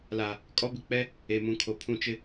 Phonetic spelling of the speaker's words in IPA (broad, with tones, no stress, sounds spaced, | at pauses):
l a˨ | kʼ ɔ˦ b ɪ˨ k͡p ɛ˦ | e˨ m ũ˨ kʰ o˨ pʰ ũ˦ t͡ʃ ɪ˦